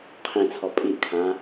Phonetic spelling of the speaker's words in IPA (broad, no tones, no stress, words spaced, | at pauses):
qʰĩt͡sʰɔ pʼiʔkʰãː